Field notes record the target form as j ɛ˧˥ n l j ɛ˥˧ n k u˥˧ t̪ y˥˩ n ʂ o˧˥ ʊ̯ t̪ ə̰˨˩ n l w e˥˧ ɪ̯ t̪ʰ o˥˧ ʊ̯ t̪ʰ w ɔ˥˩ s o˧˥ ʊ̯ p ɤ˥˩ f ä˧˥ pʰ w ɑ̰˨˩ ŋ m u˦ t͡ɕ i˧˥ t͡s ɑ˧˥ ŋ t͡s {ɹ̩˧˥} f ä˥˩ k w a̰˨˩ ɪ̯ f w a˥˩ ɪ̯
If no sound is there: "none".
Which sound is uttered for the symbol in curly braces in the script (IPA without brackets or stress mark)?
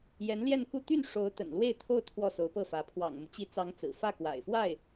ɹ̩˨˩